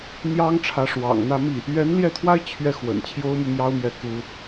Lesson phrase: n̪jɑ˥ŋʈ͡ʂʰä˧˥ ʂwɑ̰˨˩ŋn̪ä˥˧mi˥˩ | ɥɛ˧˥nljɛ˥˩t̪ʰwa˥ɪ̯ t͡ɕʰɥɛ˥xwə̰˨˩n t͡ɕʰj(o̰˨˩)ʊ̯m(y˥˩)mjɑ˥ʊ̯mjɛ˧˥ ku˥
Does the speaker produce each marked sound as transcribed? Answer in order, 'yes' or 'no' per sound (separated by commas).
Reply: no, yes